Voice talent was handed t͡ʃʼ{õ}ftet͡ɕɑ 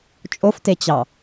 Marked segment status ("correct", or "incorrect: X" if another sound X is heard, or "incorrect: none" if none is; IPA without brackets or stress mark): incorrect: o